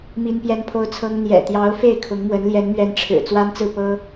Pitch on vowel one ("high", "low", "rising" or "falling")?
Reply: high